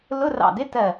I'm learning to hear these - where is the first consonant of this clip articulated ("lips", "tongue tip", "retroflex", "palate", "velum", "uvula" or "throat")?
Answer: tongue tip